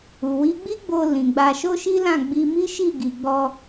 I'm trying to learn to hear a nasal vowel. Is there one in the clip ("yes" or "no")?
yes